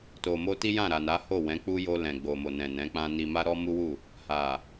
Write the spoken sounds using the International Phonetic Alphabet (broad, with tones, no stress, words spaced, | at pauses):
to˨mo˧ti˦jã˦˨ ɾa˨na˨˦ ho˦˨wɛ̃˨˦k͡pu˦ jo˧lɛ̃˨ ɡ͡bo˨mo˨ nɛ̃˨nɛ̃˨˦k͡pã˦ni˧ ma˦ɾɔ˦ mu˦wu˦˨ | ha˨